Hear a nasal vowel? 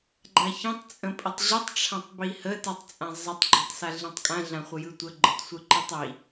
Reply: yes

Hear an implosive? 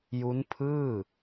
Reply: no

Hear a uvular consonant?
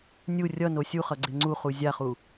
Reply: yes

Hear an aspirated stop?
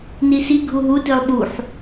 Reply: no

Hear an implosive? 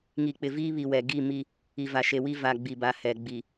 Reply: no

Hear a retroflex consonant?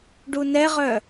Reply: yes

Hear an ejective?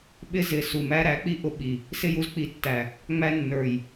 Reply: no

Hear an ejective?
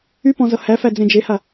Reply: no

